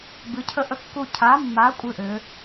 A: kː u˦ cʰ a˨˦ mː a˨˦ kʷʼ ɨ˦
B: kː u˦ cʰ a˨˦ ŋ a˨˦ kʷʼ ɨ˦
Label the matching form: A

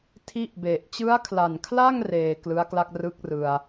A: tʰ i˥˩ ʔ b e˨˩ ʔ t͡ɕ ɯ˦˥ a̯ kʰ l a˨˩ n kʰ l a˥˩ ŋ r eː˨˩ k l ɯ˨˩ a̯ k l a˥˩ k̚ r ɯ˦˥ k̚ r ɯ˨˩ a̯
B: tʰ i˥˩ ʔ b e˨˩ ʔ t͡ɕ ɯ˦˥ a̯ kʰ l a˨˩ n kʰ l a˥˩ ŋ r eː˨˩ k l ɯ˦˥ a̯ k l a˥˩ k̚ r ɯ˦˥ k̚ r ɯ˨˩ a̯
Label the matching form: B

